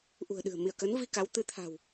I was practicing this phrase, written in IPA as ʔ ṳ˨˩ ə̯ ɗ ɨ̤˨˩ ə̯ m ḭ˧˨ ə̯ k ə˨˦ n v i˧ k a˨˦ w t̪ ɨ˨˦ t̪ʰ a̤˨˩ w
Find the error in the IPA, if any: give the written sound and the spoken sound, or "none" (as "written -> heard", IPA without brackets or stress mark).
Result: none